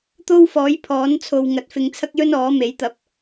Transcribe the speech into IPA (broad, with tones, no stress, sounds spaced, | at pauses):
t̪ o˥ w f ɔː˨˥ j pʰ ɔː˨˥ n t͡sʰ o˨ w ŋ ɐ˨ t̚ f ɪ˧ ŋ t͡sʰ ɐ˥ k̚ j ɵ˥ n ɔː˨˥ m e˨˥ j t̪ ɐ˨˥ p̚